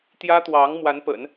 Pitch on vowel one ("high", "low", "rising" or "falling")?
high